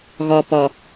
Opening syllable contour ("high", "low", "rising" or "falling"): low